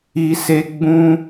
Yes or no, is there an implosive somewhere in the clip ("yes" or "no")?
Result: no